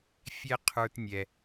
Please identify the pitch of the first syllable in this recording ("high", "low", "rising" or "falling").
high